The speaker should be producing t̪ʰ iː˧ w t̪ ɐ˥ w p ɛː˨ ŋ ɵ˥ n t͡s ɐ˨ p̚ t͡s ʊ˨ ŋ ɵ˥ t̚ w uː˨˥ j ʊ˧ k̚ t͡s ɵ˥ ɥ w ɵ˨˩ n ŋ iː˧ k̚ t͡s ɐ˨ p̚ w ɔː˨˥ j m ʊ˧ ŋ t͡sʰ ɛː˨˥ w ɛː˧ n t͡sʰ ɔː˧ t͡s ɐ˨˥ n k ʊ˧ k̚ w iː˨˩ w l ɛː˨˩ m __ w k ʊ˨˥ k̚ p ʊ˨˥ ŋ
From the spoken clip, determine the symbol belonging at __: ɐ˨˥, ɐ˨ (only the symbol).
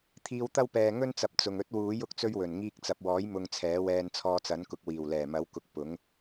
ɐ˨˥